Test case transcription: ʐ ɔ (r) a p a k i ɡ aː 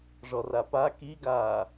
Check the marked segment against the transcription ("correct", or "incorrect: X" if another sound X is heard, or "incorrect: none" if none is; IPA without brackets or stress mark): correct